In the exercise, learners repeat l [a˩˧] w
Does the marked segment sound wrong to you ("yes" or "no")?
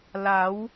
no